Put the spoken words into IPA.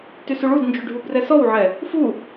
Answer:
t y s u ɭ u d n d͡ʒ y ɖʱ u b r ɛ s ɔ w ʕ ɛ | f u

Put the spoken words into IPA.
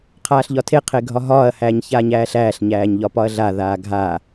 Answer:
qʰ aː ɬ ʎ ɒ tʰ e qʰ e ɡʱ ɒ ɦ ɒː ɐ̯ h æː ɲ ç aː ɲ æː ɬ æː ɬ ɲ æː ɲ ʎ ɒ p ɒ ɐ̯ ɮ a ð aː ɡʱ a

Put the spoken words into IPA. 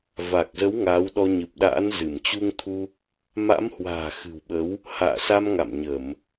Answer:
v a˨˩ k̚ z ə˨˦ w ŋ aː˨˦ w ɗ ɔ˧ ɲ ɨ˨˩ p̚ ɗ a̰ː˧˥ n z ɨ˧˩ m t͡ɕ u˧ ŋ t̪ʰ u˧ | m a̰˧˥ m h w a̤ː˨˩ x ɨ̤˨˩ w ɓ ə˨˦ w | h a̰ː˧˨ s a˧ m ŋ a̰˧˨ m ɲ ə˧˩˨ m

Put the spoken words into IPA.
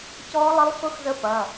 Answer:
c ɔː˦˥ lˠ ɪ˦˥ lˠ x ʊ˦˥ x z ə˦˥ p ɐː˩˧˩

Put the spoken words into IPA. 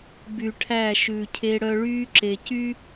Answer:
b y˨ ʈʰ æ˦˨ ʃ ʉ˨ cʰ e˦ ɽ œ˦ ɭ yː˦ ǁ e˨ c y˦

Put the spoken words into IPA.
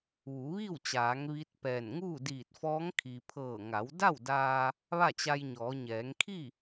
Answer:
ʋ u˩˧ ʋ i˥˨ w t͡ɕ aː˩˧ ŋ ʋ i˧˥ t̚ p ɛː˧˩ n ŋ uː˥˨ d iː˧˩ t̚ f ɔː˧˥ ŋ kʰ i˩ pʰ ɤː˧˩ ŋ a˩˧ w d a˥˨ w d aː˧ | ʋ a˥˨ t͡ɕ a˧ j ɲ ɔː˩˧ ɲ ɛː˩˧ ŋ kʰ i˥˨

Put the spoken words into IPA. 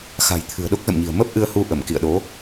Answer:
x a̤˨˩ j t̪ʰ ɨ̤˨˩ ə̯ ɗ o˦˥ k̚ z ə̰˧˨ m ɲ i̤˨˩ ə̯ m ə˦˥ p̚ ʔ ɨ˧ ə̯ h u˧ ʔ ə˧˩ m k ḭ˧˨ ə̯ ɗ o˨˦

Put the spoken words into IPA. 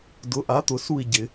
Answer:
d ʊ˩˥ ʔ a˩˥ t̪ ʊ˨˩˦ s u˥˨ i̯ ɟ ɪ˨˩˦

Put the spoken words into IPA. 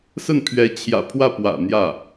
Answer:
s ə˥˩ n pʰ ɥ ɛ˧˥ t͡ɕʰ j ä̰˨˩ pʰ w ä˥˩ p w ä̰˨˩ n̪ j ä˥˩

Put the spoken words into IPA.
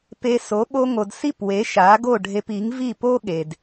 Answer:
p e˧ s o˩˥ ɓ o˧ ŋ o˩ d s i˥˩ p w e˩˥ ʃ a˩˥ ɡ o˥˩ ɖʱ e˧ p i˩˥ ŋ v i˥˩ p o˥ ɠ e˩ d

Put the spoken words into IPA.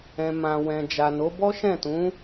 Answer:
ɛ̃˨ m ã˨ w ɛ̃˨ d͡ʒ a˨ n o˨˦ b ɔ˦ ʃ ɛ̃˦˨ t ũ˨˦

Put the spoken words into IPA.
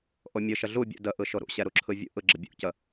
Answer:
ʔ o mʲ ɯ ʃ ə ɮ u bʲ ṵ d ə ʔ ɯ ʃ o ɾ ṵ ɕ ɛ ɾ u ǁʰ ɯ vʲ ṵ ʔ ɯ ɡ͡ǁ ə bʲ ṵ c ə

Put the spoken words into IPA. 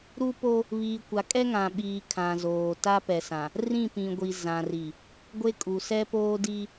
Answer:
ɾ u˦ p o˦ | β iː˨ kʷ a˨ kʼ ɛ˦ ŋ ã˨ ɓ iː˨ kʰ ã˨ z oː˨ t a˦ p ɛ˨ s ã˨ | r ĩ˦˨ p ĩ˨ ɡʷ i˨ z ã˨ r i˨ | ɡʷ e˦ kʼ u˨ s ɛ˦ p oː˦ d i˦

